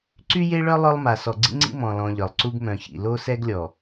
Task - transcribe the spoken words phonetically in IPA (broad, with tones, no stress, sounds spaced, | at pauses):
ǀ y˦ j e˦ ɭ œ˦ lˠ œ˦ lˠ m a˨ s ɔ˨ ɡ͡ǀ ḭ˦ ŋ͡ǀ ḭ˦ m ɔ̃˨ l ɔ̃˨ ʎ œ˨ lˠ ǀ u˦ ɡ m œ̃˨ ç ḭ˨ l o˦ s ɛ˦ ɡ lʲ ɔ˨